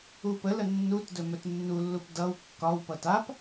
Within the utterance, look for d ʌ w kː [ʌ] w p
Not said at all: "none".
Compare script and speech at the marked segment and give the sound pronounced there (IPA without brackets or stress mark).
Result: ɒ